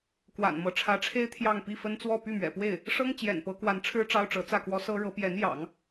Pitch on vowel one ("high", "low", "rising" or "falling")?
low